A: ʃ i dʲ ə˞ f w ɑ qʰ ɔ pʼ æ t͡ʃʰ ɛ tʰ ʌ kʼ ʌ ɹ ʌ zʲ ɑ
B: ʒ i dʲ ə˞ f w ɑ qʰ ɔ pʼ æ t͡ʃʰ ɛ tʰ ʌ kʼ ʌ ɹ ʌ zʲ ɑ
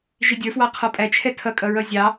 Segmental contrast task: B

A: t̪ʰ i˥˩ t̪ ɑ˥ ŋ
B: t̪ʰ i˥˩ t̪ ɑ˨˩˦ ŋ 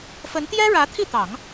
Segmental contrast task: B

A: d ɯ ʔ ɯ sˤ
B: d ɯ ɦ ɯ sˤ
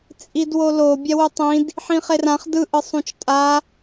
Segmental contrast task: A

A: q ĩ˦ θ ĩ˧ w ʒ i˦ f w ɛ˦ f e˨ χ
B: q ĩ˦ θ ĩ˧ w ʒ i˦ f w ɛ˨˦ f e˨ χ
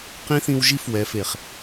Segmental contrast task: B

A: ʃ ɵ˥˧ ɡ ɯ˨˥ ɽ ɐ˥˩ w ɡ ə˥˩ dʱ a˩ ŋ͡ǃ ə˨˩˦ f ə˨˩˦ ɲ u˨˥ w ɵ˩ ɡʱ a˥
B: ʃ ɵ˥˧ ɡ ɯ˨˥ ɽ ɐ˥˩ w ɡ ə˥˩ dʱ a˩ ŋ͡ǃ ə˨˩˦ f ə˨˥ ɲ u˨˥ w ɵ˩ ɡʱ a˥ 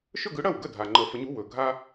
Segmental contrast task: A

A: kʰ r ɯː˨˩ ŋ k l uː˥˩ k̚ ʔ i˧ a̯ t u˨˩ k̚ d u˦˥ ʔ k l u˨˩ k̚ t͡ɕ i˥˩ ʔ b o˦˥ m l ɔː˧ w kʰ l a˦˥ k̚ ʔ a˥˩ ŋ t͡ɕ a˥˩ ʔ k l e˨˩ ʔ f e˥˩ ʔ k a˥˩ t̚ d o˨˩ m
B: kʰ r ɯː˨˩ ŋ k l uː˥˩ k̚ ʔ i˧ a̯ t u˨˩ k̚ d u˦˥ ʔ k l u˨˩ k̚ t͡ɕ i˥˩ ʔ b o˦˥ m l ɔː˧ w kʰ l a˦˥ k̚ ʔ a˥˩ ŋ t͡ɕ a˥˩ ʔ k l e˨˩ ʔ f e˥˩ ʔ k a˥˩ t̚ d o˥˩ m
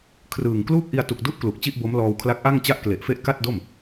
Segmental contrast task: B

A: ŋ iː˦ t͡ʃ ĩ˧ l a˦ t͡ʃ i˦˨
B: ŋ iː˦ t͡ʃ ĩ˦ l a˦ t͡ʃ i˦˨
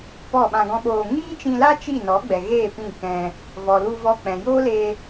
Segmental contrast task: A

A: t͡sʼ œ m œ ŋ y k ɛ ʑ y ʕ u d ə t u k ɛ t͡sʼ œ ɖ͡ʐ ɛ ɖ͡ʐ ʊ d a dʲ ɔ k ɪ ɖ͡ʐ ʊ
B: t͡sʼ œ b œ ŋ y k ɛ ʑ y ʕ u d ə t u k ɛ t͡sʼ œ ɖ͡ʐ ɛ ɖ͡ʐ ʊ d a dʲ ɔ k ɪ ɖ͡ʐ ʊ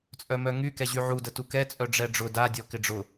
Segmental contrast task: A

